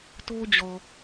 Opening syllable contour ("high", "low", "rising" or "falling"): high